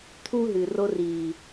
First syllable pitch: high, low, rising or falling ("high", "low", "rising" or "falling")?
high